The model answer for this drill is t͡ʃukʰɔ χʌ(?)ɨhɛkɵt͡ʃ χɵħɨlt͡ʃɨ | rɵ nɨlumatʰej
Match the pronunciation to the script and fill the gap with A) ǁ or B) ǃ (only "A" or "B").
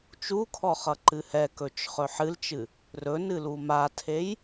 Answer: B